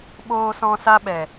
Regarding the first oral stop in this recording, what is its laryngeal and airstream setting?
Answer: implosive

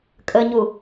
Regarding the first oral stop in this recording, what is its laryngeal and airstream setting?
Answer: ejective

